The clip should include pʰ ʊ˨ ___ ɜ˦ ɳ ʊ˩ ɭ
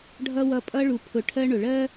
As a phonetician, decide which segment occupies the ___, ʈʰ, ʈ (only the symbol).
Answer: ʈʰ